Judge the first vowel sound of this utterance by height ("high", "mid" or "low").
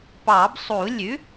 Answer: low